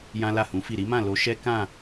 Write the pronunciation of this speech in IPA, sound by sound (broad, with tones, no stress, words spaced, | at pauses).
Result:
jã˦la˦˨hũ˨˦fi˦˨ ɾi˨˦mã˦˨lo˧ ʃɛ˦ kã˦˨